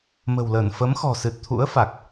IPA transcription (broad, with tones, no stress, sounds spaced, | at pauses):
m ə̤˨˩ w l əː˧˩ n f ə˨˦ m x ɔ̤˨˩ s ɨ˨˩ t̚ t̪ʰ ṵ˧˥ ə̯ f a˨˩ k̚